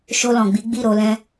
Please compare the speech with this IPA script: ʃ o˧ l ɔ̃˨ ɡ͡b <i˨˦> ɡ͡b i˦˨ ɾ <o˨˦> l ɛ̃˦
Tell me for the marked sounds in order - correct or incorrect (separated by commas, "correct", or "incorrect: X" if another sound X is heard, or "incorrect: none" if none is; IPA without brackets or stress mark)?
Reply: correct, correct